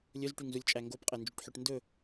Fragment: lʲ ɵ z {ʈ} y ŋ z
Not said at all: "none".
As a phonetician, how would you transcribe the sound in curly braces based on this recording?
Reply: ʈ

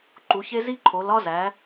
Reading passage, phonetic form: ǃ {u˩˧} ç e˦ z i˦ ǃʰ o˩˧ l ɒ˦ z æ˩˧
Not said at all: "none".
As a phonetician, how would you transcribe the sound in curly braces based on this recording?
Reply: u˩˧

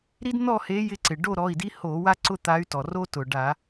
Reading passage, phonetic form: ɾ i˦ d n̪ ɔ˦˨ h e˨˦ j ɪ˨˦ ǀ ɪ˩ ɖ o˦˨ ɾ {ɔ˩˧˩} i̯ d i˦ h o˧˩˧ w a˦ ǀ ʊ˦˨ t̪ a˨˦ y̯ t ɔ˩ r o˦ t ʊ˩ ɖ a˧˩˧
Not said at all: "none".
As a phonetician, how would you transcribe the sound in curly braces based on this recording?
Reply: ɔ˩˧˩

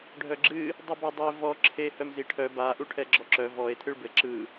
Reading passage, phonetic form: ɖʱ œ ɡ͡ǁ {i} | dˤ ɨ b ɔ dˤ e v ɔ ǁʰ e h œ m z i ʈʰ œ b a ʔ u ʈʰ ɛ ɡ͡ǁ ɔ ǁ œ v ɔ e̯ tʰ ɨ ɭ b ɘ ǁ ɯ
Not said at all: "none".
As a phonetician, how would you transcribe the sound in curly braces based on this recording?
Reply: ɨ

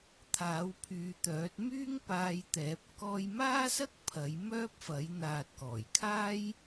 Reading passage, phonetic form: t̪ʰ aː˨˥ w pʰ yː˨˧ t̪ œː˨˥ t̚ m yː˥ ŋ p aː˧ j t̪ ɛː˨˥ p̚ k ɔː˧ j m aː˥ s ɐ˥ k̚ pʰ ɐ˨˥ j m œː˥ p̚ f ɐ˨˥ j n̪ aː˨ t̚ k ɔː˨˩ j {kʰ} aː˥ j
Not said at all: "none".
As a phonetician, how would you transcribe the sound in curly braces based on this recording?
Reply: kʰ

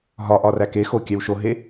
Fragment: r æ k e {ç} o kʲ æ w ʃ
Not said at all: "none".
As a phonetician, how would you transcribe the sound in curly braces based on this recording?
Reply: x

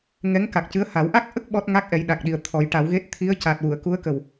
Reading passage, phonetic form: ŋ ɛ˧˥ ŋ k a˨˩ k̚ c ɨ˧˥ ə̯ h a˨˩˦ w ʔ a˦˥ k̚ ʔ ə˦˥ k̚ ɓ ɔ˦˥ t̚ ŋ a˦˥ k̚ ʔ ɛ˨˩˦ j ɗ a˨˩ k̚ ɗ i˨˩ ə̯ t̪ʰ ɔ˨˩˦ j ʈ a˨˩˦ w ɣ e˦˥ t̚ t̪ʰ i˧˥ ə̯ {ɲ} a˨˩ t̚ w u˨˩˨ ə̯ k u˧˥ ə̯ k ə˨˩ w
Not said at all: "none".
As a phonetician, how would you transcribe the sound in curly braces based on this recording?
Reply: c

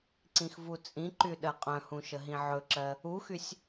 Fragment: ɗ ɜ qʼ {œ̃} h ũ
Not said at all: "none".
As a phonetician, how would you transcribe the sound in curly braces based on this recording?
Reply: œ̃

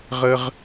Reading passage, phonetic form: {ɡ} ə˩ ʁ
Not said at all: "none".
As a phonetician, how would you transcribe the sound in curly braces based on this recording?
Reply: ʁ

